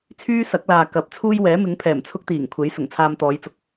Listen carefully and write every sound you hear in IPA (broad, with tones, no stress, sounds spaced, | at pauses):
t͡sʰ yː˥ s ɐ˨˥ k̚ l aː˨ k ɐ˨˥ p̚ t͡sʰ uː˥ j w ɛː˨˥ m ɪ˨˥ ŋ pʰ ɛː˨˩ m t͡sʰ ʊ˥ k̚ t̪ iː˨˩ ŋ kʷʰ e˨˥ j s ʊ˨˩ ŋ t͡sʰ aː˧ m t̪ ɔː˨˧ j t͡s ʊ˧ k̚